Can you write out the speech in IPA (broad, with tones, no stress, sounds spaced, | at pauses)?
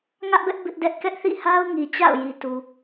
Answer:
ŋ ä˦ ʔ b ɛ˦ ʔ b ɪ˦ ʔ d ɛ˦ ʔ k ɛ˦ ʔ θ ḭ˦˨ h a˦ ʊ̯ ŋ i˨ t͡ɕ a̰˦˨ ʊ̯ j i˨ t u˨